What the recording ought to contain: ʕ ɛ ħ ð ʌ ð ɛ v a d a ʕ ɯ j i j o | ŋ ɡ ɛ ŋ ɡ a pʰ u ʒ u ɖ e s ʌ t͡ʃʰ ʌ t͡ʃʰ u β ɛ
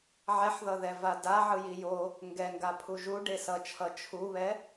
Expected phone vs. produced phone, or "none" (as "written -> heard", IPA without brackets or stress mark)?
none